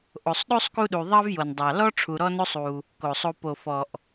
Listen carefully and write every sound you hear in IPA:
ʔ o˨ sˤ ɗ o˥ sˤ k u˦ ɗ u˨ ðˤ ɑ˥ v j o˨ n dˤ ɑ˨ l ɔ˥ ʈ͡ʂʰ u˨ ɾ ɔ˦ n o˦ sˤ u˩ | k o˩ sˤ o˨ p o˩ f ɔ˩ ʔ

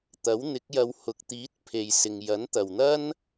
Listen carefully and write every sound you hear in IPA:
t̪ ɐ˨˥ w n̪ ɪ˨˥ k̚ j ɐ˧ w h ʊ˨ k̚ t̪ iː˨˥ t̚ pʰ e˨ j s ɪ˨ ŋ j ɐ˨˥ n t̪ ɐ˨ w n̪ ɐ˥ n

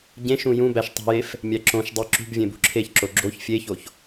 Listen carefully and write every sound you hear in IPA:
ɟ ẽ ʃ ũ j ũ b æ ʃ tˤ i̤ j e f | mʲ æ ǁ õ ʃ dˤ i ǁ ṳ b vʲ ẽ b ṳ ǁʰ e ç ǁ o ɡ͡ǁ o ç fʲ e ç o ç

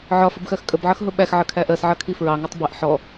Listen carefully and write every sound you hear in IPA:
ʕ ɒ f ə b x ɜ x kʼ ə b ʕ ʌ x ɦ ʊ ɓ æ x ʕ ə kʰ æ ʔ ɜ s ʕ ʌ kʰ i f ɹ ɑ ŋ ɑ tˤ b ɛ ʔ ħ ɔ

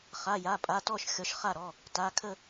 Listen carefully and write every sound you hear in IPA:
χ a˩˧˩ j a˩˧˩ pʼ a˩˧˩ t ɔ˥˨ ʃ xʲ ɔ˨˦ ʃ χ a˥˨ ɾ ɔ˩˧˩ | t a˩˧˩ kʰ ə˥˨

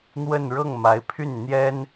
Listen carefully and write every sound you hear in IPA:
n̪ w ə˥˧ n ɻ ɤ˥˩ ŋ m a˧˥ ɪ̯ pʰ y˥˩ n n̪ j ɛ˥ n

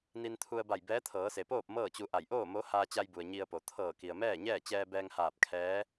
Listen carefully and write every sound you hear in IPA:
n i˧ n t̪ʰ u˧ ə̯ b a˧˩ j b ɛː˧˥ t̪ʰ ɤː˩˧ s e˩ p oː˥˨ p̚ m ɤː˥˨ t͡ɕ u˧ ʔ a˧˩ j ʔ oː˥˨ m o˧˥ h aː˧ t͡ɕ a˧ j b u˩ ə̯ ɲ i˧ ə̯ p o˩ t̪ʰ ɤː˧˩ k i˩ ə̯ m ɛː˥˨ ɲ ɛː˥˨ t͡ɕ ɛː˧ b ɛː˧ ŋ h aː˧˩ p̚ kʰ ɛː˧˥

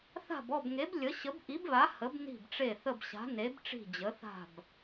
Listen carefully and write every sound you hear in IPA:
θ a̤˦˨ b ɔ˦˨ b ŋ e˨˥ b lʲ ə˨˥ ɕ ə˨˥ b ʔ i˨˥ b β a˨˥ h ə˨˥ b n i̤˦˨ b ʈ͡ʂ e˦˨ θ ə˦˨ b ɕ a̤˨˥ n e˨˥ b ʈ͡ʂ i̤˦˨ d͡ʑ ə˨˥ θ a̤˦˨ b

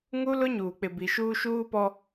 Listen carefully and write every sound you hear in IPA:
ŋ u˦ l ʊ˦ ɲ uː˨ k͡p ɪ˨ b i˨ ʃ uː˦ ʃ uː˦ p ɔ˦

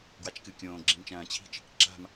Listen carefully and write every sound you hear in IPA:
ɡ w a t͡ʃ k ɨ kʲ õː ɡ͡ǁ ĩ m t͡ʃ ɐ̃ː t͡ɕʰ i̤ t͡ʃ | ǁ a̤ m

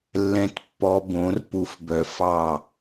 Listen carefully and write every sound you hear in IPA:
lː ɛ̃˧ t pː ɔ˧ b õ˨˦ r p u˨ f b œ˨ f ɑ˦˨

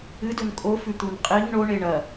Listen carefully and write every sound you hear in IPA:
ɨ d ɵ n kʼ o f ʉ t̪ u n qʼ i ŋ ɳ o ɳ e ɳ ɐ

